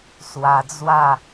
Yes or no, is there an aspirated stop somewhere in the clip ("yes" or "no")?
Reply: no